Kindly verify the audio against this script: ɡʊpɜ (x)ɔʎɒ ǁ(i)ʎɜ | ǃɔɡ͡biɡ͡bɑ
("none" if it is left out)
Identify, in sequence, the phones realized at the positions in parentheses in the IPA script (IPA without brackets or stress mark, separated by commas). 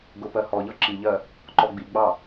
h, i